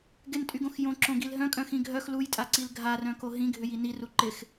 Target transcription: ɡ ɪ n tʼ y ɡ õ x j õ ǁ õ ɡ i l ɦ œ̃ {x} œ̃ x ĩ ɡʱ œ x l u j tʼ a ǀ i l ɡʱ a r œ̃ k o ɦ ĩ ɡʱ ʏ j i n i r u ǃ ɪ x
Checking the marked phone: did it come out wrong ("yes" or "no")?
yes